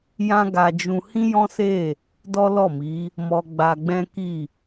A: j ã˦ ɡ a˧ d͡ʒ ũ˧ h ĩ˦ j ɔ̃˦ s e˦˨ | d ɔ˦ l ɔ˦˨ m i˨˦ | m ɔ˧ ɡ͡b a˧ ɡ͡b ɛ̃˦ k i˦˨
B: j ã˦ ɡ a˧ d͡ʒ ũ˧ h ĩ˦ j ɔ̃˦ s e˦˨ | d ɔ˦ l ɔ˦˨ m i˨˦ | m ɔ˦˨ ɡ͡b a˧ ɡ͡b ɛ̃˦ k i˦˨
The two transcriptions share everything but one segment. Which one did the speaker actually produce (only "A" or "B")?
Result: A